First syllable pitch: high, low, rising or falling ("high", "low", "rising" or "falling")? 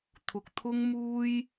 low